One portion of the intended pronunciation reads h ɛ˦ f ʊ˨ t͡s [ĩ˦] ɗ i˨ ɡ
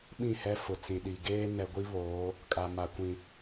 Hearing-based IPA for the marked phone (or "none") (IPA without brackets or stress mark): ĩ˨